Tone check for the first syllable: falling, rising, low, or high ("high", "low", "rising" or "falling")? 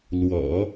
low